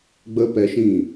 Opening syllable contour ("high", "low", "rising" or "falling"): high